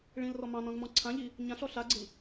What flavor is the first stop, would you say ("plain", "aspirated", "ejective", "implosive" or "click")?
click